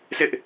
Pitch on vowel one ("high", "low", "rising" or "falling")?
high